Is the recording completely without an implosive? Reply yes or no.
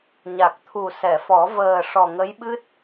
no